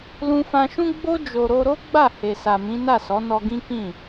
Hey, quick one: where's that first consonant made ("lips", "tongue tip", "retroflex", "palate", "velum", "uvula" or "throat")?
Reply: tongue tip